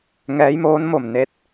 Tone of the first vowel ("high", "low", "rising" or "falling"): rising